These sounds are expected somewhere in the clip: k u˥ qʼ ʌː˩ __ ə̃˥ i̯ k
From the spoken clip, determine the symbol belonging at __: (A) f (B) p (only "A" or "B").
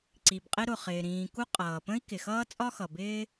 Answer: B